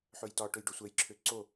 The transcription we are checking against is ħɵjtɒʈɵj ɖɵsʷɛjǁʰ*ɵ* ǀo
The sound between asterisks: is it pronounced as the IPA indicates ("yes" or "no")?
no